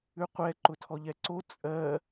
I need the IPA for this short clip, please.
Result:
ʉ qʷ ɛ ǃ ʊ tʰ ɔ ʎ ɛ ǀ o t͡sʼ ɜ

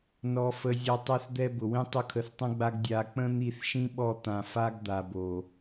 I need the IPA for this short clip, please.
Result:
n ɔ˧ f ə˧ zʲ ɔ˧ tˤ ɛ˦ θ d̪ ɛ˦ b ʊ˨ w ĩ˦ tˤ ʊ˦ kʰ ə˧ θ tˤ ə̃˦ ɡ͡b a˦ ɡ dʲ a˧ k͡p ə̃˦ n̪ i˦˨ θ ʃ ĩ˦ ɓ ɔ˦˨ t̪ ã˨ f a˧ ɡ d̪ a˨ b o˨

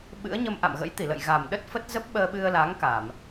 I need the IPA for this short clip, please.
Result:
ɓ ɨ̰˧˥ ə̯ ɲ ə˧ m ʔ a̰˧˨ m ɣ ə̰˧˥ j t̪ i˧˩ l ə̰˧˨ j ɣ a˨˩ m ɗ ə˦˥ t̚ f ə˦˥ t̚ z ə˦˥ p̚ ɓ əː˧ ɓ ɨ˧ ə̯ l a˨˦ ŋ k a˧˩˨ m

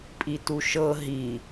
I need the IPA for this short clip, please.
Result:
pʼ i t u ʃ ɤ ɦ i

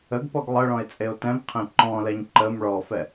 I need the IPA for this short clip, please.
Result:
ə ɡ p ɔ ɡ lˠ ə ɭ ɔ̃ e̯ t͡sʼ e o̯ t ɛ̃ m qʰ ẽ ǃ ɔ̃ l ɛ ɲ ǃ ə m ɭ ɔ f ɛ

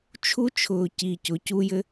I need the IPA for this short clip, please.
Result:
t͡ʃʰ u˥ t͡ʃʰ ʊː˧ c i˧ c ʊ˧˥ c u˥ j ɘ˥

